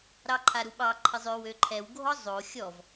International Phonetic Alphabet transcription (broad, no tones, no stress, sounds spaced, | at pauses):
ɾ ɑ ǃʰ a ɾ u ɓ ɑ ǃʰ ə zˤ ø w ø ǃʰ ɛ w ɡʱ ɔ zˤ o xʲ ɔ v